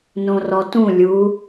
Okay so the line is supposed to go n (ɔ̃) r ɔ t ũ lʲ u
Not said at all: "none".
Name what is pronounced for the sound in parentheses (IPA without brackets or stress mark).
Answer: õ